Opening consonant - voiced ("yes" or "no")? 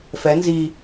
no